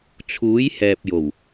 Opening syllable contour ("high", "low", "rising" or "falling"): rising